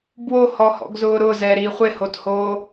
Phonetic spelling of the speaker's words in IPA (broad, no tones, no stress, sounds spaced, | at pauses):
b w o h ɔ h ɔ̰ ɡ z ʊː ɾ ʊ z ɛ ɾ i χʷ ɪ h o t h oː